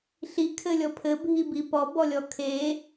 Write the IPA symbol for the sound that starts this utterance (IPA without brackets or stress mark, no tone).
ɬ